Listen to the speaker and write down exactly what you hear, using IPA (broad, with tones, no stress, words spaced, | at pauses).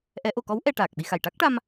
ʔɛ˨˩˦ʔo˨˩˨kɔ˧˥w ʔɛ˧ʈaː˨˩k̚ɓi˧xa˨˩j ʈa˦˥k̚ʈa˧m